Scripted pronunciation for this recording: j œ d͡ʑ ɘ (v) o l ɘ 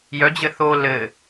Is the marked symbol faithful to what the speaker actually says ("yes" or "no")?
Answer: no